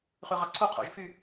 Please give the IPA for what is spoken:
χyʁɑǀʰu qʰo̰ʒfy

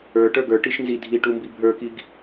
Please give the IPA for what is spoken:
ə˞ ʈə˞ɡə˞ ʈiʃnzi dʱiʈumbi bʱə˞kiɡ

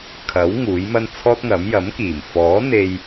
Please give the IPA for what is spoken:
kʰɐ˨˥w ŋuː˨˥jmɐ˥n t͡sʰɔː˥t̚ŋɐ˨˥m jɐ˨˥mkiː˨˩m fɔː˨˥n̪e˧j

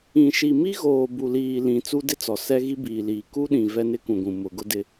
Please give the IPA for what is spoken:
ĩ˨ʃi˨ mi˦ɣoː˨ bu˨liː˨lĩ˨ t͡su˦dɪ˦t͡sɔ˨ sɛ˦ɣi˦biː˨liː˨ ku˦ɗĩ˨ vɛ˦nɪ˦kũ˨ɡʷũ˨ mʊ˨ɡʊ˦dɪ˦

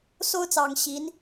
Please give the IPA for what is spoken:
so˥ʊ̯t͡sɑ˨˩ŋ ɕi˧˥n

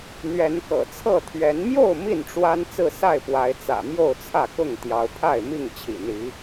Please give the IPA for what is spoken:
n̪ɥɛ˨˦nkɤ̰˨˩t͡sʰɤ˥˨t̪ʰɥɛ˨˦n mjo˥˨ʊ̯ mi˥˨nʈ͡ʂwa˦n t͡sɹ̩˥˨sa˥˨ɪ̯pwa˨˦ɪ̯ t͡sä̰˨˩mjo˥˨ʊ̯t͡sʰä˥˨ kʊ˥˨ŋt̪jɑ˨˦ʊ̯pʰa˥˨ɪ̯mi˥˨ŋ t͡ɕʰḭ˨˩n̪i˨˦

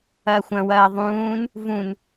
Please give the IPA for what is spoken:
ɐːxʷɐ̃wɐː ðˤũːn | vũn

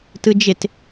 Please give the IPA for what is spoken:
tɯd͡ʒɪt

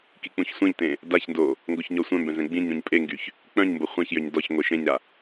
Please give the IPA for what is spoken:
kik͡pũçsʷẽʎtẽ | daçndo | ŋɡoçɲɔsʷœ̃mbɛ̃z ɛ̃ɡ͡bĩɲɾũɲ pʼeŋɡyç | k͡pœ̃ɲmbo χʷɛ̃çjøɲ dɔç ŋʷeʃẽɲɾa

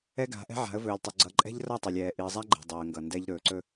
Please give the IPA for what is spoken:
ɛ˦ɡa̤˨˦ʔɛ̤˦ ʕa̤˨˦ə̯vɵː˨lʲtˤɵ˨ ɡ͡ǀʌ˦ ǃʼɛ̤˦ʎrʌ˦˨tˤe˨lʲ ɛː˨ʔi˨ə̯zˤa˦ɡ͡ǃe̤˨ dˤo˨ə̯ŋɡʌ˨ndɛ˦ʎ ɾɵː˨ǀɵ˦

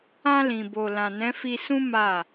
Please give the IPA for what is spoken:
ã˧lĩ˨bo˨ lã˨nɛ̃˨˦fi˧ sũ˦ ma˦˨

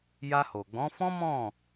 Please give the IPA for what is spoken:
ja˧ho˨ɡ͡bɔ̃˨˦fɔ̃˦ mɔ̃˦˨

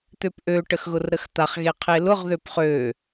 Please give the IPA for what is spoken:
t̪øpʔø ʈəxɣʊrɾəxt̪aχ ɣeqʰelʊʁ ðøpχø

